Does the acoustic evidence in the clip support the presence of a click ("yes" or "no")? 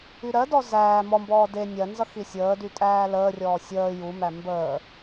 no